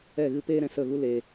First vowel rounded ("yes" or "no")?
no